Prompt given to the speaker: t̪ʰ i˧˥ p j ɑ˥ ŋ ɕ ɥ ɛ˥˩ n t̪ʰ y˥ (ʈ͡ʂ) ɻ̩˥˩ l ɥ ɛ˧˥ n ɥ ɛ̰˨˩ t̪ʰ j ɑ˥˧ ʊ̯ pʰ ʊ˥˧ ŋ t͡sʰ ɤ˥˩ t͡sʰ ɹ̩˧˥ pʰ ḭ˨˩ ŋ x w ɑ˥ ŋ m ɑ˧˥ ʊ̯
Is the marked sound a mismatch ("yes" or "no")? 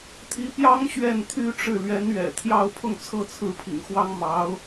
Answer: no